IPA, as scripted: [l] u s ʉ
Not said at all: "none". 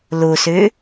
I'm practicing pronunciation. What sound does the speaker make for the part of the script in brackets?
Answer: l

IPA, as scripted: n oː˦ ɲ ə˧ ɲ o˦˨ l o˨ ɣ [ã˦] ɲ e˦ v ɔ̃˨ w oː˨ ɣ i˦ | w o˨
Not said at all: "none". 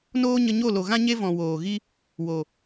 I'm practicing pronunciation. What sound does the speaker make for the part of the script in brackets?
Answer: ã˦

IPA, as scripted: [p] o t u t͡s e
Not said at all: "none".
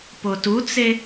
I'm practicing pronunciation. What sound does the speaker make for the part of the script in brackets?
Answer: p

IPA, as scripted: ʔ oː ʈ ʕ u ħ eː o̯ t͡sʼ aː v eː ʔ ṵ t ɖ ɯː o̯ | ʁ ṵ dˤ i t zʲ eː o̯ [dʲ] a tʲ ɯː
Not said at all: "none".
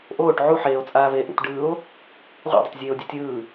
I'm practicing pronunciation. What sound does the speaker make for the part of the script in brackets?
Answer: dʲ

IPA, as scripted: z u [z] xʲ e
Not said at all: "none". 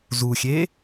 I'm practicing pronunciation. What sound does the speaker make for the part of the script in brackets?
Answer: none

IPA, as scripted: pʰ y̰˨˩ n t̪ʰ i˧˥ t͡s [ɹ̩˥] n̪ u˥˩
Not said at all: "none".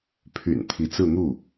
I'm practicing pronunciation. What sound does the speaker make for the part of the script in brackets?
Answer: ɹ̩˥˧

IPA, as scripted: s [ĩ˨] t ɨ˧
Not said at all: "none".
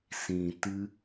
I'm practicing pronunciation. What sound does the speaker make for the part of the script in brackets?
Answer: ĩ˨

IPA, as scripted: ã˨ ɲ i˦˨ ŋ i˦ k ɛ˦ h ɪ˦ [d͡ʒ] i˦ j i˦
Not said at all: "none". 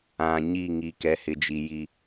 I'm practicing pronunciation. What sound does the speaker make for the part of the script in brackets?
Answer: d͡ʒ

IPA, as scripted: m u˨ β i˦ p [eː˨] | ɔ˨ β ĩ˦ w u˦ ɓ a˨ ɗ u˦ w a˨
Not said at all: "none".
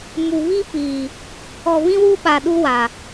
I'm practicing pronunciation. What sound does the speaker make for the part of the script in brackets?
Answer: iː˨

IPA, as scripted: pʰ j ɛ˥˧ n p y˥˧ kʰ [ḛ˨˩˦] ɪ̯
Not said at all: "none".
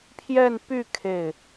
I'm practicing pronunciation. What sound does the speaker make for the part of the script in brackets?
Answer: e˥˩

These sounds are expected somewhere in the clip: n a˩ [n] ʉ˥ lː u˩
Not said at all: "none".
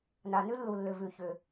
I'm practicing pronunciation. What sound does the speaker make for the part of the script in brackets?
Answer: n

